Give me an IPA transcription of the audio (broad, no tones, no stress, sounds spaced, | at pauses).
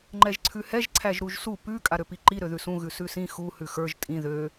ŋ͡ǃ ɛ ʒ ǀʰ ʉ h ɛ ʒ ǀʰ æ ʒ ɾ u ʒ s u p ʉ kʼ a ɾ ø p i ǃ i ɾ ø ð ʉ s ũ ɣ ʉ s ʉ s ĩ x u h ʉ x ə˞ ʒ tʼ ĩ ð ø